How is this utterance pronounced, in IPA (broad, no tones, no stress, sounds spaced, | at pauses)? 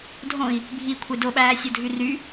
dʱ õ i̯ | bʱ i kʷʰ e d o ɓ æː sʲ o dʱ y r y